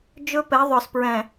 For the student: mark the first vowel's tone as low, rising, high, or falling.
high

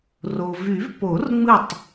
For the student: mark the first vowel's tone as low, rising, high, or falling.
low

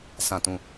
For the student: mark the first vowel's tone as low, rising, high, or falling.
falling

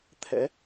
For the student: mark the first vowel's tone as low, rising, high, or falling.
rising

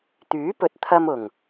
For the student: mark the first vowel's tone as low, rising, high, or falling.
rising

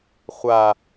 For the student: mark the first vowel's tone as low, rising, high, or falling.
low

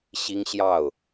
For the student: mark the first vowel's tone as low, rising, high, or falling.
high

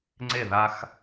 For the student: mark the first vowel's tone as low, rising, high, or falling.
falling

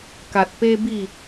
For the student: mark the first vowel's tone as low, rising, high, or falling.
low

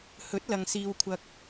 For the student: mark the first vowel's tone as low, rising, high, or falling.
rising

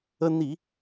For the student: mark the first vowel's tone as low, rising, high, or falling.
high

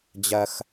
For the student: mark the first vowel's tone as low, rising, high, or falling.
low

